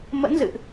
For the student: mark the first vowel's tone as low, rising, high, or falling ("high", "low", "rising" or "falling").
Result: rising